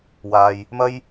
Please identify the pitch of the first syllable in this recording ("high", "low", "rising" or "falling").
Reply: low